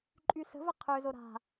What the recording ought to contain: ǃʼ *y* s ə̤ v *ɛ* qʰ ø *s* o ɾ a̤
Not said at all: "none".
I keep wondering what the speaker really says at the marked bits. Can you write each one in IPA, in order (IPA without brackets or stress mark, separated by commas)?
y, ə, z